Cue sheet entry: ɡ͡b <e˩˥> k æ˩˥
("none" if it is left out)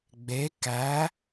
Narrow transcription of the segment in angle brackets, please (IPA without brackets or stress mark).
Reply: e˩˥